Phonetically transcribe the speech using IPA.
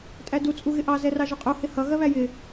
tʼ æ d u t͡sʼ u ɣ ɪ ʔ ɑ z ɛ r ɑ ʒ ʊ qʼ u h ɪ h ʌ ɣ ɜ β æ j ɪ

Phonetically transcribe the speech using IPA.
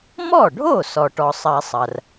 m ɔ˥˩ ɖʱ o˥˩ s ɔ˩ ʈ ɔ˩ sˤ ɐ˨˩˦ sˤ ɐ˩ r

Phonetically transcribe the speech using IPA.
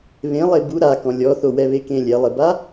β ẽ lˠ e b u ɾ a k ɔ̃ lʲ ɔ θ o w ɛ β e k ẽ lʲ ɛ lˠ ɪ b a

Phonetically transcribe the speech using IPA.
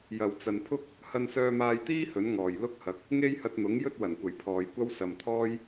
j ɐ˨ w t͡s ɐ˨ n pʰ ʊ˥ k̚ | h ɐ˧ n s œː˧ m aː˧ j t̪ iː˥ h ɵ˨˥ n ŋ ɔː˨˩ j l ʊ˥ k̚ h ɐ˨˥ k̚ | ŋ e˥ j h ɐ˧ t̚ n̪ ʊ˨˥ ŋ j ɵ˥ t̚ w ɐ˨˩ n kʷ ɐ˨˩ j pʰ ɔː˨ j kʷ ɐ˥ w s ɐ˨ m t̪ʰ ɔː˥ j

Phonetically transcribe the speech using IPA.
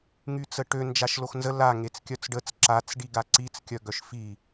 ŋ y t͡s ə ʈ ø n d͡ʒ a ʃ l o x n z ə l a ŋ e t͡s kʲ œ t͡s ɖ ə t͡s ǁ a t͡s ɖ i ɡ a ǀ i t͡s kʲ œ ɡ œ ʃ f i

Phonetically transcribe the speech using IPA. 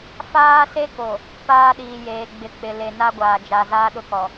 f aː˦ s e˦ k o˨ | p aː˦ ɗ iː˨ j eː˨ ɡ͡b ɪ˨ k͡p ɪ˨ l e˨ n a˦ ɡʷ aː˨ d͡ʒ a˨ z aː˦ ɗ ʊ˦ k ɔ˨

